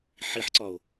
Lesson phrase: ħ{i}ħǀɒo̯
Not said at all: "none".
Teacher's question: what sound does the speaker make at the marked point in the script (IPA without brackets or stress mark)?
i